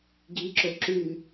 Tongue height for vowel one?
high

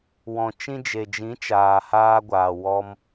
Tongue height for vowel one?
mid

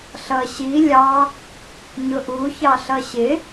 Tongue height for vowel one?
mid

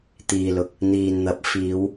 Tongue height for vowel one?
high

